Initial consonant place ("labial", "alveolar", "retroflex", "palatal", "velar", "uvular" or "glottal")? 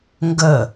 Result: velar